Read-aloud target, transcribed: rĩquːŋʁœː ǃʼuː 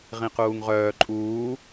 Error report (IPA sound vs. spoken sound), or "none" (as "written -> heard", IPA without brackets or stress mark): r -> ʁ